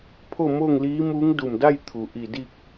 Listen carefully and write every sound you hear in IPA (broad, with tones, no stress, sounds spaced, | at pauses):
pʰ o˥˨ m o˥˨ ŋ l iː˧˥ m uː˧˥ ŋ d u˧˩ m d a˥˨ j t̪ʰ u˩ ʔ i˧˩ d i˥˨ k̚